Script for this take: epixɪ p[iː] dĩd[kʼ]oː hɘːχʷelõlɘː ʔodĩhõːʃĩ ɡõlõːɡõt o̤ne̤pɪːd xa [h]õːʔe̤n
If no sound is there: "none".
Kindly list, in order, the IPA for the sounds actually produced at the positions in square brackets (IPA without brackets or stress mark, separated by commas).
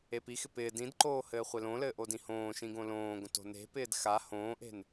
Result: ɪː, ǃ, h